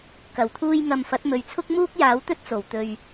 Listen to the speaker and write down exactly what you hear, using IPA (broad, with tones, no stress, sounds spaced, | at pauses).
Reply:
k ɐ˨˩ w t̪ʰ uː˧ j ŋ ɐ˨ m f ɐ˨˥ t̚ m ɵ˨˧ ɥ t͡sʰ ʊ˥ k̚ m uː˥ k̚ j aː˨˥ w t̪ ɵ˥ t̚ t͡s o˨˩ w t̪ ɵ˨ ɥ